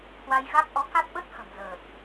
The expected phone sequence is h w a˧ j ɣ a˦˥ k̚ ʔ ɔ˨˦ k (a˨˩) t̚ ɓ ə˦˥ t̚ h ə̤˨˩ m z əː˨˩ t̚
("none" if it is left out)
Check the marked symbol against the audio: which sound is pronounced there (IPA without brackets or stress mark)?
a˦˥